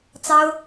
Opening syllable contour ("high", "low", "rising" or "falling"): high